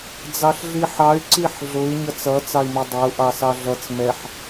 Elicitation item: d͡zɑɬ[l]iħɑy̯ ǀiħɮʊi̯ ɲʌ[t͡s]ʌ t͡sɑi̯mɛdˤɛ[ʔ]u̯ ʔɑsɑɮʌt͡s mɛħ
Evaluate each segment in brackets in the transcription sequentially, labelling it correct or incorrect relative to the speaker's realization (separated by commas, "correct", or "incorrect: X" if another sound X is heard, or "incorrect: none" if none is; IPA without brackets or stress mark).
incorrect: ɮ, correct, incorrect: none